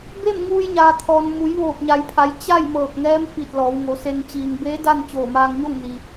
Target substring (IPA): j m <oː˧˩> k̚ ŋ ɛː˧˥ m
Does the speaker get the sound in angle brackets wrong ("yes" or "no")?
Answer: yes